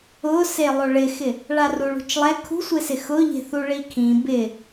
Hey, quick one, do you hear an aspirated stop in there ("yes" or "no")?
yes